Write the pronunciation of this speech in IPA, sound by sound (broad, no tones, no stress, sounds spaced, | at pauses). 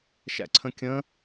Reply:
ʃ æ̰ ǀʰ ə̃ kʲ ə̃